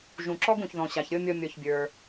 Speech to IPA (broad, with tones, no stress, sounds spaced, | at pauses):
ʒ ũ˨ ǁ ɔ˥ ɡ ũ˨ ç ð ɔ̃˨ ɕ a˨ ç ɾʲ ɤ˥ mʲ ɔ˦ mʲ ɔ˨ ç bʲ ə˞˩